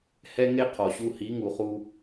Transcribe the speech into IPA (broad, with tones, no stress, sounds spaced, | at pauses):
h ɛ˦ ŋ e˦ qʰ ɔ˨ ɕ u˧ h i˨˦ ŋ u˨ χ u˦